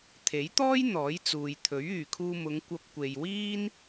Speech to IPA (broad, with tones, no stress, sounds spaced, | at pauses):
t̪ʰ e˨˥ j t̪ ɔː˥ j n̪ ɔː˨˥ j t͡s uː˨ j t̪ʰ ɵ˨˥ ɥ yː˨ kʰ uː˧ m ʊ˨˧ ŋ kʷ ɐ˧ p̚ kʷ e˨ j w iː˥ n